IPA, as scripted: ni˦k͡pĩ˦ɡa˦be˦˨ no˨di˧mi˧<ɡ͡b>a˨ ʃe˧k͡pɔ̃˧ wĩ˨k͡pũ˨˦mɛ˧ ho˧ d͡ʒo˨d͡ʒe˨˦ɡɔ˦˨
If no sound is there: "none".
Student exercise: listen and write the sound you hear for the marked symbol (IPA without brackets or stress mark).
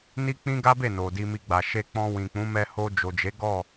ɡ͡b